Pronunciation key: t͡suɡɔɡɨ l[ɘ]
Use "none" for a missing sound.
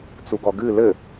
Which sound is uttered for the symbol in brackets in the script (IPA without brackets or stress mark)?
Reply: ɘ